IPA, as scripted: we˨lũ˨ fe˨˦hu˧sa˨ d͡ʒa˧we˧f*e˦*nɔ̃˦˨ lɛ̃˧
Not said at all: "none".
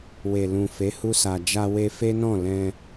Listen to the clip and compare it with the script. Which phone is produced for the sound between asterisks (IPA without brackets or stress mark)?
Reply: e˦